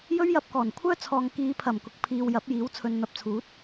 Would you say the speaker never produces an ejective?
yes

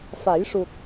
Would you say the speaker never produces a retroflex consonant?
no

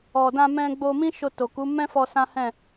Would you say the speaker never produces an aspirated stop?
yes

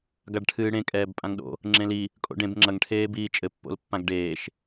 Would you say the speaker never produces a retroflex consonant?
no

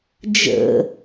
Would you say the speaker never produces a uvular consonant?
yes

